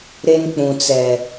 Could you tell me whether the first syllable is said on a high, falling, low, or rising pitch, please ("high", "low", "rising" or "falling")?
high